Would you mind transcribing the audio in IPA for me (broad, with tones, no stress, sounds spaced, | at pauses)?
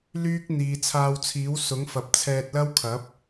l yː˥ k̚ n̪ iː˨ t͡sʰ aː˧ w t͡sʰ iː˨˥ w s ʊ˨˥ ŋ f ɐ˨ p̚ t͡sʰ ɛː˧ t̚ l ɐ˥ w kʰ ɐ˨˥ p̚